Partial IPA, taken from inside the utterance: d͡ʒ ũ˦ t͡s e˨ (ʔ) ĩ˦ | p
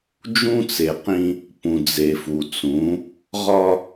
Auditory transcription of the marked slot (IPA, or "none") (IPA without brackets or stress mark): q